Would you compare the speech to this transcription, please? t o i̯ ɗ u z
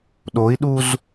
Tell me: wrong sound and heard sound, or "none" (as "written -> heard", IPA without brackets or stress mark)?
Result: t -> ɗ